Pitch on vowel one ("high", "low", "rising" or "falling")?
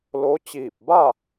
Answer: rising